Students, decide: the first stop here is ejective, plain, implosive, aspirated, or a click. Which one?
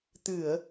plain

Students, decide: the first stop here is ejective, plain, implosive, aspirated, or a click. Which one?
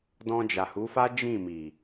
plain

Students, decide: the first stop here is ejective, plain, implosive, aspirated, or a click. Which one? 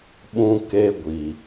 implosive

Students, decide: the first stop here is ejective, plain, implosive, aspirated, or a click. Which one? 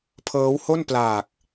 aspirated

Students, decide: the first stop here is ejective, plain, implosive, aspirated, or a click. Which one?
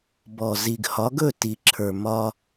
plain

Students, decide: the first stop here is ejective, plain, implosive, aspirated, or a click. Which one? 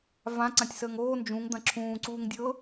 click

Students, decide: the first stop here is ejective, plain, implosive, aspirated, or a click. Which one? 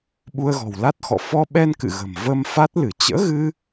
implosive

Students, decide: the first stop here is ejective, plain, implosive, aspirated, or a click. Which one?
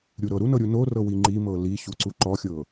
click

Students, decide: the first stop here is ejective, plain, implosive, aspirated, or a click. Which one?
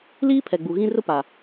aspirated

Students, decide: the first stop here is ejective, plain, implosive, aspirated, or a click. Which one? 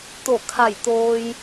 plain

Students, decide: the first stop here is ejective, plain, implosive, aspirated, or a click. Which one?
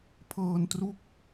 aspirated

